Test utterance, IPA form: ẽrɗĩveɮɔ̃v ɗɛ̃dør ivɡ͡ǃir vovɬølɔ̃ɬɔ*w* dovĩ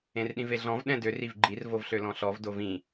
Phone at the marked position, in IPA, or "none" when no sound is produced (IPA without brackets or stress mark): v